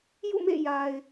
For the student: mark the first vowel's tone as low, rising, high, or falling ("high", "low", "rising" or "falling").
falling